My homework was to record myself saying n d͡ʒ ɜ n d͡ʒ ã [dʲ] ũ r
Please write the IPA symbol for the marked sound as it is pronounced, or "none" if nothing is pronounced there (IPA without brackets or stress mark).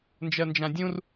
dʲ